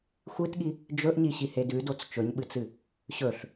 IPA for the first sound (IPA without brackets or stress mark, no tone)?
xʷ